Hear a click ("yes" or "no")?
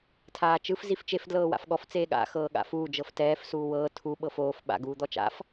no